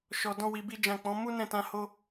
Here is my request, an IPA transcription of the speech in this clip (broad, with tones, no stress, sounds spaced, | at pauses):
ʃ ɔ˧ d ɔ̃˦ w i˧ b i˦ d͡ʒ ã˦˨ k͡p ɔ̃˨˦ m u˦ n ɛ̃˦˨ t ã˧ h o˦